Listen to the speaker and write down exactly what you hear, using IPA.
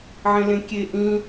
ʕ ẽ l ẽ kʲ e ʔ ĩ

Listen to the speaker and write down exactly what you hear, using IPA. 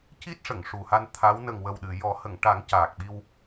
c i˦˥ t̚ ʂ ə˨˩˨ ŋ ʂ u˨˩ h a˧ n t̪ʰ a˧˥ w n ə˨˩ ŋ w ə˨˩ w ɗ ɨ˨˩˨ j ɔ˨˩˦ h ə˨˩˨ ŋ ʈ a˨˩˦ ŋ c aː˨˩ k̚ ɓ i˧ w

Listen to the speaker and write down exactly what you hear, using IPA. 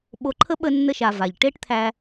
ɓ o˧ ǃʰ ə˥ ɓ ə˧ nː ə˧ ʃ a˩ v a˩ ʎ ʈ e˥ ʈ t̪ʰ æ˧

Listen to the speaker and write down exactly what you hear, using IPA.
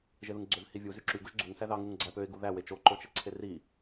ʒ e ð ɯ ŋ ɡ͡ǀ ø v h i vʲ u z y ǁ y ɡ u ʒ ɡ͡ǀ u ŋ s æ ð ɑ ŋ u ŋ ɡ͡ǀ æ p ø ɪ̯ ɡ u ð æ w e t͡ʃ o ǃ o t͡ʃ e ǀʰ e r i

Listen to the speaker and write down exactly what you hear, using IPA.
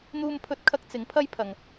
n̪ uː˥ m pʰ ɵ˥ t̚ kʰ ɐ˥ k̚ t͡s ɪ˨˥ ŋ pʰ ɐ˥ j pʰ ɐ˨ ŋ

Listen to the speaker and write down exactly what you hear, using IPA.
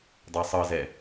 dˤ a sˤ ɤ z ɛ

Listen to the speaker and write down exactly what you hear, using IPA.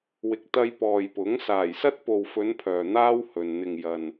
w ɪ˨ k̚ t̪ ɐ˧ j p ɔː˨ j p ʊ˨˥ ŋ s aː˨˩ j s ɐ˥ t̚ p o˨ w f ɵ˨˧ n pʰ œː˨ n̪ aː˥ w h ɵ˨ n n̪ ɪ˨ ŋ j ɐ˨ n

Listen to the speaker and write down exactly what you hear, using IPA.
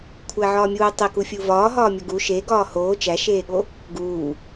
kʷʰ æ ʕ ɒː mʲ uː tˤ e k u fʲ u v ɒː ɦ ɒː mʲ o ɡ u ʃ e ɡ ɒː h oː t͡ʃ æ ʃ eː ɠ o | ɡ uː

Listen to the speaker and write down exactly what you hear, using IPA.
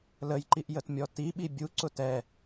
l ə j ǃ i ʔ j ə t mʲ ɔ t i ɓ i bʲ u ǀ ʊ t ɛ

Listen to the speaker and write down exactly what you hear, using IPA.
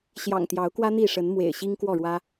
ɕ j ɑ̰˨˩ ŋ t̪ j ɑ˨˦ ʊ̯ k w ä˦ n̪ i˥˨ ʂ ə˨˦ n m w ḛ˨˩ ɪ̯ ɕ i˦ ŋ k w ɔ˥˨ ɻ w ä˦

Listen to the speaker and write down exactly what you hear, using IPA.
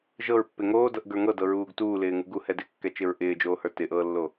ʒ ɤ ɹ pː ɪ ŋ oː d ɤ ʔ ɡ ə˞ ŋ ɤ d ɤ ɹ uː ɡ t uː l ɪː ŋ u ɡ u h ɛ d ɪ kː ɛ t͡ʃ ɪ ɹ ʔ ɪː d͡ʒ oː h ə˞ t ɪ ʔ ɤː lː o

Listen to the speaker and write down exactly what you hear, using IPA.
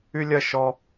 y˥ lʲ ɜ˥˧ ʃ ɔ˥

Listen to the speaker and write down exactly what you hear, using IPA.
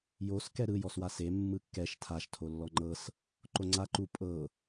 j o s k ɛ ɾ ɯ j ɔ s w a s e mː ɯ kː ɛ ʃ tʰ a ʃ tʰ o lː ɔ ŋ͡ǃ ɤ s | ǃ o ŋ͡ǀ a ǃ u pʼ ɤ

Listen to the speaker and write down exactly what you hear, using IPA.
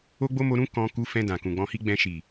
o˦ ɡ͡b o˦ m o˧ ɾ ũ˦ k ɔ̃˧ k u˧ f ɛ̃˧ d ã˨ k ũ˨ ɡ͡b ɔ̃˧ h i˦ ɡ͡b ɛ̃˧ ʃ i˨

